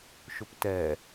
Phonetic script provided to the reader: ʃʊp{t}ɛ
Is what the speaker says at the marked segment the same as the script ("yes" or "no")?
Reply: yes